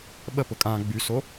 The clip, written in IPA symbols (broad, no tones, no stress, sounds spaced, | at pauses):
ɓ ə p ʊ kʼ ã ɡ͡b y s o